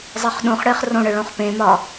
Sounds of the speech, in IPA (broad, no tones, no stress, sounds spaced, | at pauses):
zˤ e χ ɗ ũ χ ɽ e χ r õ ɽ ə ɭ õ χ p ẽ m ɒ